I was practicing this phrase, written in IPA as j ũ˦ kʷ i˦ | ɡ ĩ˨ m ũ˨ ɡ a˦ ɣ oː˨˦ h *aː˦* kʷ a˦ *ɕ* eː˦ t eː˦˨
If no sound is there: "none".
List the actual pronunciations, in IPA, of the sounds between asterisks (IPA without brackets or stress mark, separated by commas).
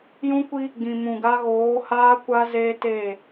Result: aː˦, z